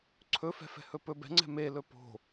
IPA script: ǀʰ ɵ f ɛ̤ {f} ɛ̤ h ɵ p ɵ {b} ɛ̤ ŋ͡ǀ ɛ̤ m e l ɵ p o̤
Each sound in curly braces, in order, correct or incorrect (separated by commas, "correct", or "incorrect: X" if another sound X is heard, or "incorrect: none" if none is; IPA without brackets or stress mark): correct, correct